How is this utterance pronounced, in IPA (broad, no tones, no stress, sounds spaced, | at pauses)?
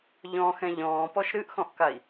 ʎ ɔ̃ x ɛ̃ ʎ ɔ̃ː p ɔ ʃ ɾ ɨ ʔ x ɔ̃ ʔ k a i̯